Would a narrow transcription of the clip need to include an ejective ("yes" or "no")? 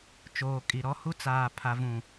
yes